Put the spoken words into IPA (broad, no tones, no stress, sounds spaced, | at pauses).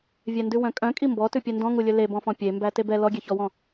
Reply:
vʲ ɛ n d ʉ w œ̃ kʼ œ̃ kʼ i m b ɔ t ʉ pʲ ɛ n d ɔ̃ ŋ u lʲ ɵ l e b ɔ̃ f ɔ̃ pʲ e m b æ t e b ɛ l ɔ ɡʲ ɛ ç ɔ w ɔ̃